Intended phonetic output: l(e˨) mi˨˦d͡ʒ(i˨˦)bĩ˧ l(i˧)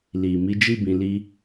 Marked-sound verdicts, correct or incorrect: incorrect: i˨, incorrect: i˦, correct

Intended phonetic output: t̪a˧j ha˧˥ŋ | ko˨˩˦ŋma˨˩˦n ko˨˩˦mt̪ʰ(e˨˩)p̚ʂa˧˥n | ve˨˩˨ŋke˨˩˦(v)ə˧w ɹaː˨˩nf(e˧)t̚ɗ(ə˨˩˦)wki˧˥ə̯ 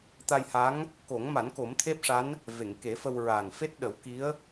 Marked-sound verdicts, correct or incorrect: incorrect: e˦˥, incorrect: f, incorrect: e˦˥, correct

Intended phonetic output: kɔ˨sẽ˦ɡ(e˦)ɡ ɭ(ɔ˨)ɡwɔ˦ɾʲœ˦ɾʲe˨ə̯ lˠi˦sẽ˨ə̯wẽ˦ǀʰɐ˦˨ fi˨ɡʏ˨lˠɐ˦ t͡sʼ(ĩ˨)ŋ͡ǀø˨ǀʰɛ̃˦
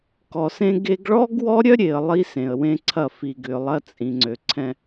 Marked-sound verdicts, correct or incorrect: correct, incorrect: ɔ˦, correct

